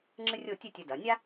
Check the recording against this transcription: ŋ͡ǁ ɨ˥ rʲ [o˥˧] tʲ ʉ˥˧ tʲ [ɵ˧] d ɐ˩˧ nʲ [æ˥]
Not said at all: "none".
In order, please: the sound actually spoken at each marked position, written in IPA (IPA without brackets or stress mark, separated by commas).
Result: o˥˧, ɵ˧, a˥